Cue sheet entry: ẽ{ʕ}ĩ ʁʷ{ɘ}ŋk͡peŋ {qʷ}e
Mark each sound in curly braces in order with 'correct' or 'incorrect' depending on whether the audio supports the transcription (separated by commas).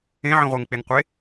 correct, correct, correct